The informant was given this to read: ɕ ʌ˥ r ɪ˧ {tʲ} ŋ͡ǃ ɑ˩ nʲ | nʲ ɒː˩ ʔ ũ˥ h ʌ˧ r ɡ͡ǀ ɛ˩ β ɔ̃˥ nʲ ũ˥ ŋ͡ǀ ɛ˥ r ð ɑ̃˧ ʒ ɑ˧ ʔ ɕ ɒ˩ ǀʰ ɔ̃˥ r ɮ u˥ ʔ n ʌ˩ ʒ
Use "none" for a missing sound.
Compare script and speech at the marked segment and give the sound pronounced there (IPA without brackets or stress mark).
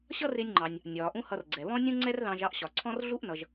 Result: nʲ